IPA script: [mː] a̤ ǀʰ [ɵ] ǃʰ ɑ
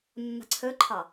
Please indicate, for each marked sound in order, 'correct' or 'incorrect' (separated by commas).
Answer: correct, correct